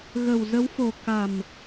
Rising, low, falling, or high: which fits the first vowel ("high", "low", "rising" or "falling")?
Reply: low